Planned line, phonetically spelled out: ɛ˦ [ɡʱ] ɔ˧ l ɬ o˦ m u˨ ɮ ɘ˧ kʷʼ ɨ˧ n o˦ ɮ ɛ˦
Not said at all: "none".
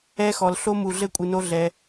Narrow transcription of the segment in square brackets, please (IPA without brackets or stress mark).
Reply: x